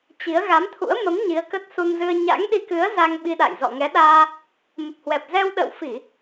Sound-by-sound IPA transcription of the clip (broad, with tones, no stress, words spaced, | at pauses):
t͡ɕi˨˦ə̯ ɣa˨˦mt̪ʰṵ˧˥ə̯ mə˨˦m ɲi˨˦ə̯kə˦˥t̚ su˧nzɨ˧ə̯ ɲa̰˧˥ŋɗi˧kɨ˨˦ə̯ za˧ŋɓi˧ɗa̰˧˨j zɔ̰˧˨ŋɛ˨˦ɗaː˧ | mə˨˩p̚hwɛ˨˩p̚zɛ˧w ɗə̰ː˧˨wfi˧˩˨